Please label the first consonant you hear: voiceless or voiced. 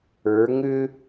voiced